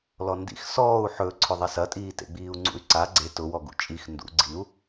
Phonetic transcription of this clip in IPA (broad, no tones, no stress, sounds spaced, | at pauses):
l ɔ n d ḭ x s ɔː u̯ ħ ɵ ǀʰ ʊ ðˤ ɐ s ɐ tʼ iː t ḛ ɡ͡b iː u̯ ŋ͡ǀ ṵ y̯ ǀ a ɡ͡ǀ e t ʊ w ɔ ɡ ṵ t͡ʃʼ i x n d ṵ ɡ͡ǀ i u̯